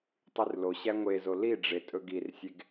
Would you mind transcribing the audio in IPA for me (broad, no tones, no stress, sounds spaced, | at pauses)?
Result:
tˤ y r l o ɕ æ ŋʷ e z o l i ɖ͡ʐ e tʼ ɵ ɡ i r sʲ e ɡ